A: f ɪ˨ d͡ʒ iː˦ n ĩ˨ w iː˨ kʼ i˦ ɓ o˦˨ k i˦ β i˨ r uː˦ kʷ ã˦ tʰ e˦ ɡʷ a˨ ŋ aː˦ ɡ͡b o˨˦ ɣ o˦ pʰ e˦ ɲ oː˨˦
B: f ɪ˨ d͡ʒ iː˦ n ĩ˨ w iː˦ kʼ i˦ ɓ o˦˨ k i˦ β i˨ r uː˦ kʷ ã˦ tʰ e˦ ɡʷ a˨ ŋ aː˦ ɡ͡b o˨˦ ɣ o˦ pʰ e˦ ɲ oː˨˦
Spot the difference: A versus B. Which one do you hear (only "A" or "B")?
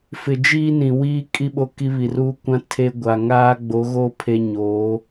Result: B